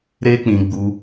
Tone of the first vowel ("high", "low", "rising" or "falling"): high